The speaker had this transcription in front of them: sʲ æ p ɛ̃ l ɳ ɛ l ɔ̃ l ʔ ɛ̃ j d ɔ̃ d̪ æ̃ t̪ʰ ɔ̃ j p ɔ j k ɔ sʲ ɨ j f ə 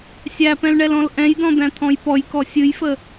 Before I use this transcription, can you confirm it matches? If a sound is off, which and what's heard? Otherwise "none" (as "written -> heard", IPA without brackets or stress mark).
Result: none